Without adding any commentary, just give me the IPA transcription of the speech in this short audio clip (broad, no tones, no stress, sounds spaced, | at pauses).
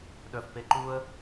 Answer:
ɗ œ f p e ǃ u ə̯